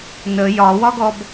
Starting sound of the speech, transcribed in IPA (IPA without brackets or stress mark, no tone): n